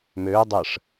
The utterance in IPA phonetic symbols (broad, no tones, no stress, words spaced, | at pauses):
møː dˤəʂ